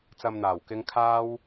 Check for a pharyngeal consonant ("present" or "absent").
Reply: absent